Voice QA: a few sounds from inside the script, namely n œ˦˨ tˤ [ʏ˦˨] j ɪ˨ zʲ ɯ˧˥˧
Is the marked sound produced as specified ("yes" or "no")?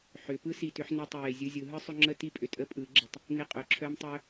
yes